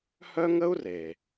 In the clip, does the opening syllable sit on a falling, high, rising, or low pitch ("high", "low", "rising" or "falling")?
high